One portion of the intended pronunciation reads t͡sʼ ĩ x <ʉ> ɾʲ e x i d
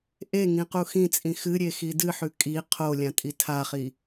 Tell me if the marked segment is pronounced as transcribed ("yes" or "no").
no